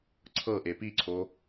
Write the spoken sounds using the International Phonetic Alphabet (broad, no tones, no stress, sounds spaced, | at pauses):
ǀʰ ɤ ʔ e p i ǀʰ o